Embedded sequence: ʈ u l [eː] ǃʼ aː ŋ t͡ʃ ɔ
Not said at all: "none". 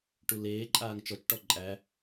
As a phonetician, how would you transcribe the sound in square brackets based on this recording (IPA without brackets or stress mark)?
eː